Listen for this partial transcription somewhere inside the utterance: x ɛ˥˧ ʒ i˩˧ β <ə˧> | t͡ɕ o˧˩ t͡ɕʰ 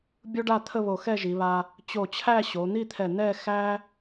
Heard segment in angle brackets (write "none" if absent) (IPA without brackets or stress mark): a˧